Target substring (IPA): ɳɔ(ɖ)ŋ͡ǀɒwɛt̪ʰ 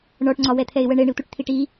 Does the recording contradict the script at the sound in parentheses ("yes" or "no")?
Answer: yes